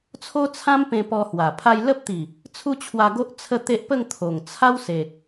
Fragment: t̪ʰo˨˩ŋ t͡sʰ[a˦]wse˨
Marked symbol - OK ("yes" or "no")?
yes